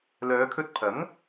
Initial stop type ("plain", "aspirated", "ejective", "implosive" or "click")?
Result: aspirated